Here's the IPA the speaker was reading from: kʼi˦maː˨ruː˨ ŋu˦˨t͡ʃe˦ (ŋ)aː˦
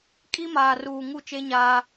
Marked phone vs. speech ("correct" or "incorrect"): incorrect